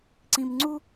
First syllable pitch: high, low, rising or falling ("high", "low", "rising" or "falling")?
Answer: low